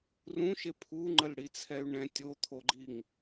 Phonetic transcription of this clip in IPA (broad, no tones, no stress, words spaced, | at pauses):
rũʃe pʰuŋ͡ǃəlɽit͡sʰɛy̯ ɳɛ̃ tʲot̪ʰoɡ͡ǃiŋ